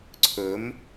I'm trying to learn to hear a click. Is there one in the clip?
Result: yes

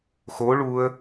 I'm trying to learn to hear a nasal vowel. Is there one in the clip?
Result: no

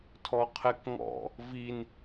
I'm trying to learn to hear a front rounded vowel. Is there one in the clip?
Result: no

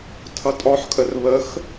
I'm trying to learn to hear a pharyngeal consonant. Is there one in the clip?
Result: yes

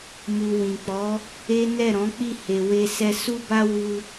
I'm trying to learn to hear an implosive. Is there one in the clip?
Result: no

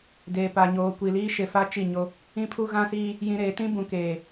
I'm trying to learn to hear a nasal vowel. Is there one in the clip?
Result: yes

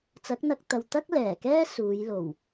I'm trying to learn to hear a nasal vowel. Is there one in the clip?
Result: no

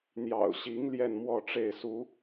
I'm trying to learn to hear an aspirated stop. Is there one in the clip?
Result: no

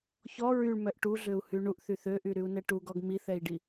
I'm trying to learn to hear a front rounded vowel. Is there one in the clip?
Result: yes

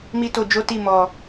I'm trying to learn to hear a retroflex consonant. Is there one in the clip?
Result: no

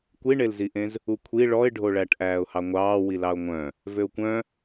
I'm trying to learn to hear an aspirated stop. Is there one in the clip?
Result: yes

